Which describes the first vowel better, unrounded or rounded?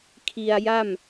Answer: unrounded